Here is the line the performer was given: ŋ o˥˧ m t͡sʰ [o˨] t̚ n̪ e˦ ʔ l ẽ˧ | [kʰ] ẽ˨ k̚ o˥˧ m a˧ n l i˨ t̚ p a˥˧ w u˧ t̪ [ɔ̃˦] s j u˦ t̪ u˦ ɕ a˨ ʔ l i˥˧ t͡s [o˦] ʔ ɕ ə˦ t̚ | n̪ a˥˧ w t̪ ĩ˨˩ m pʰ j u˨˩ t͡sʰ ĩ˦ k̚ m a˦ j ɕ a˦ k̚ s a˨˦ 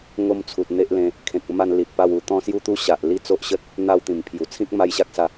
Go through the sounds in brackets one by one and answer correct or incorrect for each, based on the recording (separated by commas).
incorrect, correct, incorrect, correct